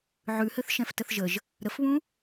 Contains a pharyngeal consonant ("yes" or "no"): yes